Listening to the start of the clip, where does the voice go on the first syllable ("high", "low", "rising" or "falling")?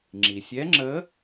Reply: low